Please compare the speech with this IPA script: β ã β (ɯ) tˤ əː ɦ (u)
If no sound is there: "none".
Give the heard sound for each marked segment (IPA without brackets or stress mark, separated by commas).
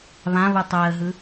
ɯ, ɯ